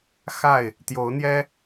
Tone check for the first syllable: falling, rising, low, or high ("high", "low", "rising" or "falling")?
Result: falling